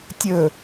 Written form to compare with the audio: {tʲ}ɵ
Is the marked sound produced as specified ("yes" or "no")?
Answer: yes